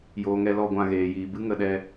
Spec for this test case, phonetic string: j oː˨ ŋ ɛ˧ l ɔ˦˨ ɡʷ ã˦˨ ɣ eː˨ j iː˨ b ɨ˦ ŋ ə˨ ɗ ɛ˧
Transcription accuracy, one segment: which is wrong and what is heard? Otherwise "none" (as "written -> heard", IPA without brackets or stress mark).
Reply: none